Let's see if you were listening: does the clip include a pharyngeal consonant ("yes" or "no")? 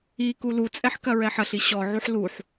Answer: yes